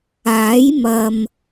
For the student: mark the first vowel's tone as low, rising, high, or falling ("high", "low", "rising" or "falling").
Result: rising